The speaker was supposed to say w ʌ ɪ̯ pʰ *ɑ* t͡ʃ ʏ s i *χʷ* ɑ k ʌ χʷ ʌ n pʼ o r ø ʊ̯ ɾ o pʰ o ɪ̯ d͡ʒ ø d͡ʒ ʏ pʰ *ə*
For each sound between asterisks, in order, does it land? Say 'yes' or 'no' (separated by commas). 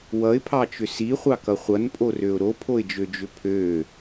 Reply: yes, yes, no